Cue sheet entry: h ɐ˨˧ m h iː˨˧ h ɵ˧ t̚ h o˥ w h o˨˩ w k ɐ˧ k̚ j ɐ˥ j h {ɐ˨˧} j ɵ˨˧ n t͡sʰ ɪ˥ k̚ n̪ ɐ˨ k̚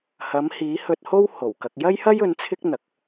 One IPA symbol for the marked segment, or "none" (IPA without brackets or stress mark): ɐ˥